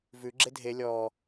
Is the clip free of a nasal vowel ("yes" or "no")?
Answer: yes